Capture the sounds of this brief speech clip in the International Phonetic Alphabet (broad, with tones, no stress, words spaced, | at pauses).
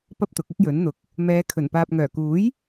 pɐ˥p̚t̪ʊ˨˥k̚ɪ˥k̚jɵ˨˥n n̪ʊ˨k̚ | mɛː˨˧kʰɵ˨˩n paː˨p̚ŋœː˨˩kuː˨˥j